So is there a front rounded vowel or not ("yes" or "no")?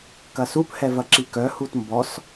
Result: yes